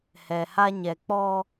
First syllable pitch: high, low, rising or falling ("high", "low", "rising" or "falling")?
low